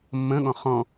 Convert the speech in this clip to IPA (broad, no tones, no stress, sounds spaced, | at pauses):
mː ə̃ ɠ ɔ̃ χ ɔ̃